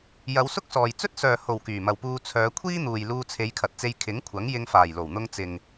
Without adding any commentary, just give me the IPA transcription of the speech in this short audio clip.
j ɐ˨˧ w s ʊ˥ k̚ s ɔː˨ j t͡s ɵ˥ t̚ s œː˨ h o˨˩ w k yː˨˩ m ɐ˨ w p uː˧ t͡sʰ œː˨˧ kʷʰ iː˥ n̪ uː˨ j l uː˧ t͡sʰ e˨˧ j kʰ ɐ˨ t̚ t͡s e˧ j kʰ ɪ˨˥ ŋ kʷʰ ɐ˨˥ ŋ j ɪ˧ ŋ f aː˨˩ j l o˨˩ w n̪ ʊ˧ ŋ t͡s ɪ˨ ŋ

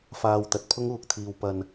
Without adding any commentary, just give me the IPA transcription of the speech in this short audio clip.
f aː˧ w t̪ ɐ˨ t̚ pʰ ʊ˥ ŋ uː˨ k̚ t̪ʰ iː˨ w p ɐ˨ n

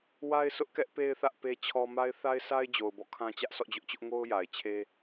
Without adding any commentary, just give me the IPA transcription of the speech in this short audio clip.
w a˦ ɪ̯ s ʊ˦ ʔ k ɛ˦ ʔ p e˦ ɪ̯ θ ä˦ ʔ p e˦ t͡ɕʰ ɔ˦ m a˦ ɪ̯ θ a˦ ɪ̯ sʰ a˦ ɪ̯ d͡ʑ o˨ ʊ̯ b ɔ̰˦˨ kʰ ã˦ t͡ɕ ä˦ ʔ s ɔ̰˦˨ d͡ʑ ʊ˦ ʔ t͡ɕ ʊ˦ ʔ ŋ o˦ ʊ̯ j a˨ ɪ̯ t͡ɕʰ e˦

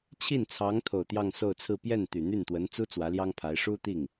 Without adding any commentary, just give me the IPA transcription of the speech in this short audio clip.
t͡ɕʰ i˥˩ n t͡sʰ ɑ˧˥ ŋ t̪ʰ o˨˩ ʊ̯ t̪ j ɑ˥˧ ŋ s o˥˧ ʊ̯ t͡sʰ ɹ̩˥˧ p j ɛ˥˩ n t̪ y˨˩ n̪ y˥˩ n t̪ w ə˧˥ n t͡s u˥ t͡s w ä˧˥ l j ɑ˥ ŋ pʰ a˧˥ ɪ̯ ʂ u˥ t̪ i˥˩ ŋ

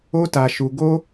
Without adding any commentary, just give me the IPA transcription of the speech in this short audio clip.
o˦ t a˧ ʃ u˧ ɡ o˦

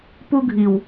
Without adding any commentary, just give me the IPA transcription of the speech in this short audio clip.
p u˧ ɡʱ i˨ w

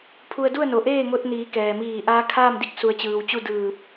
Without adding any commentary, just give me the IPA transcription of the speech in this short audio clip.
pʰ u˧ ə̯ d u˥˨ ə̯ n o˩ ʔ eː˥˨ ŋ o˧ t̚ n iː˩˧ k ɛː˩ m iː˧˩ ʔ aː˧˥ kʰ aː˥˨ m d i˥˨ k̚ s u˩˧ ə̯ t͡ɕ ɯː˩ w t͡ɕ u˥˨ d ɯː˧˩ p̚

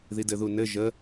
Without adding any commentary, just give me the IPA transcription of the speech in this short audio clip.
ð i d ɘ ð u n ɘ ʒ ə

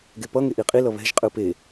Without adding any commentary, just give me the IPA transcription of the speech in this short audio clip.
ɡ e p ʌ ŋ e ʔ i qʼ i l ʌ β ɛ̤ ʒ qʼ ɯ p e

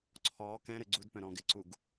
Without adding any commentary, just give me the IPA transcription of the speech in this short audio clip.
ǀʰ ɔː k ɛ̃ ɾ ɘ ɡ͡ǀ u d p œ̃ ɾ ɔ̃ː ɡ ɪ ǀ u ɡ

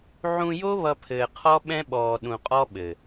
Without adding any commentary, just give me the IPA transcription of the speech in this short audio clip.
ʕ ũ˧ j o˦ β ʌ˧ pʰ ɘː˨ qʰ ɔ˦ ɓ ɛ̃˦ ɓ ɔː˨ ɗ ũ˨ qʼ ɔ˦ ɓ ɘ˨

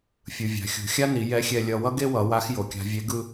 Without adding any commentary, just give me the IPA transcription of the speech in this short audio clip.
fʲ ɯ˩ vʲ a̤˩˧ xʲ ṳ˩˧ xʲ a˥ n i˩˧ j ɛ˧˥ xʲ ɛ˧ lʲ ʌ˧ w ʌ˥ ɡ e˥ w ʌ˩˧ w a˧˥ x j o˩ kʲ a̤˧ vʲ e˧˥ ɡ ɯ˥

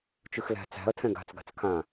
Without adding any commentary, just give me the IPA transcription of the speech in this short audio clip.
t͡ʃ ʉ x l æ̤ t͡s æ̤ ɐ̯ tʰ ɛ̃ ɡ a̤ t͡s ɡ a̤ t͡s kʰ ã

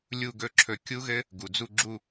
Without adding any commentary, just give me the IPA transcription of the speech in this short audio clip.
lʲ u˥˧ ɡ ɵ˥˧ ǁʰ ɵ˧˩ kʲ u˦˥ ɣ ɘ˦˥ | ɡ u˩ d͡z u˥˧ ɡ͡ǁ u˥˧

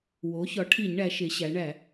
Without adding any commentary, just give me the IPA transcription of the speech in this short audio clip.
w o˩˥ ç ɒ˩˥ ʈʰ i˧˩˧ ɲ ɳ æ˩˧ ʃ e˩˧ ɕ æ˩˧ ɳ æ˧˩˧

